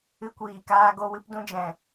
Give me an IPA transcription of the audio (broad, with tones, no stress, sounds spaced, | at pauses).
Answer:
ɨ˦ kʷ iː˧ k aː˦ ɡ o˦ w ɨ˦ p d ũ˦ d͡ʒ ɛ̃˧